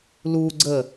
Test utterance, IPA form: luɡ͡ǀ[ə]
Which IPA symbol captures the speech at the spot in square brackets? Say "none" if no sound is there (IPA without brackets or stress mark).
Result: ə